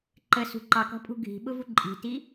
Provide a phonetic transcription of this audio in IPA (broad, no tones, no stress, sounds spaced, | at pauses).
ǃ ə s ṳ ǃ ɑ k ɔ̤ pʼ ṳ ɡʱ i̤ ɓ ʊ v u ǃʼ i̤ t i